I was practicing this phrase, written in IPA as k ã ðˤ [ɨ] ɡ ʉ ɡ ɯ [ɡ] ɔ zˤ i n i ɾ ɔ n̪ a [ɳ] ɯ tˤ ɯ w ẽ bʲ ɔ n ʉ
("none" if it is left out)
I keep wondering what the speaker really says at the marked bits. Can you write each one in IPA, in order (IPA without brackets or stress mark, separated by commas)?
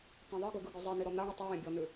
ɨ, ɡ, ɳ